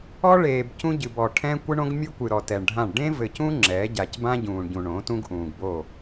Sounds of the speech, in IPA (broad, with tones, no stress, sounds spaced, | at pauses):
ɔ˦ ɭ eː˨ b c ũ˦ ɟ ɨ˨ b ɔ˨ ʈʰ ɛ̃˦ kʷ ɨ˦ ɳ õ˦ ɡ mʲ ɨ˦ kʷ ɨ˨ ɾ ɔ˨ t ɛ˨ ɳ ɖʱ ã˦˨ ɳ ɖ ẽ˦ v ɘ˨ c ũ˦ ŋ͡ǁ ɛ˨˦ ɟ a˨ c b ã˦ ɟ ũː˨ ɳ ɟ ũ˨ ɳ õ˨˦ t ũ˦ ɡ ʔ ũː˨ ɡ b o˦˨